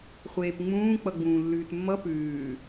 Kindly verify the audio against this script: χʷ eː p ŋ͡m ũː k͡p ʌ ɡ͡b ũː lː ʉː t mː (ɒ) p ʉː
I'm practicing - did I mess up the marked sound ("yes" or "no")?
yes